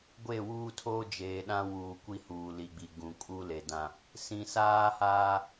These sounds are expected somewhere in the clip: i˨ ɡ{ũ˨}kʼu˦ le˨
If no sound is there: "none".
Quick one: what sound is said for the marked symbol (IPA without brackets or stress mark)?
ũ˨